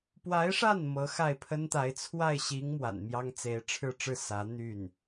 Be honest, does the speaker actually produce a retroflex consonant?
yes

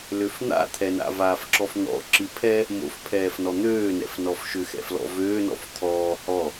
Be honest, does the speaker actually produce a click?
yes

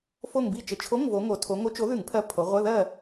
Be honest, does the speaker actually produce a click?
no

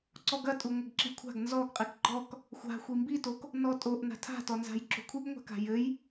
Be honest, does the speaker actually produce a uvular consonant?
yes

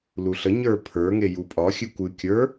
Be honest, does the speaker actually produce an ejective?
yes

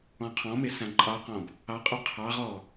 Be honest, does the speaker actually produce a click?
yes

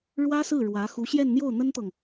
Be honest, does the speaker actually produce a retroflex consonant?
yes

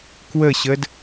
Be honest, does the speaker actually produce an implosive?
no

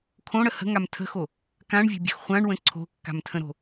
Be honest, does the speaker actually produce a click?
yes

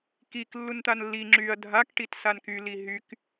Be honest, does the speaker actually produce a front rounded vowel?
yes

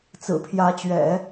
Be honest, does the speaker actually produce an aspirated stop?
yes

